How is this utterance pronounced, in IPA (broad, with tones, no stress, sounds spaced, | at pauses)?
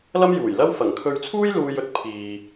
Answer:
l ɐ˥ m j uː˨˩ j l ɐ˥ w f ɐ˨˩ ŋ kʰ ɵ˧ ɥ t͡sʰ uː˥ j l uː˧ j ɵ˥ t̚ pʰ iː˨